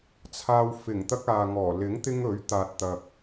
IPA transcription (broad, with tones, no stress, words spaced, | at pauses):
t͡sʰaː˧wfɪ˨˩ŋt̪ɐ˥k̚ aː˨ŋɔː˨˩ lɪ˨˥ŋ t̪ɪ˥ŋɵ˨˥ɥ t̪aː˨t̚t̪ɐ˨k̚